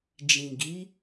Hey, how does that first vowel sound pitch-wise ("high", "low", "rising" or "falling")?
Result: low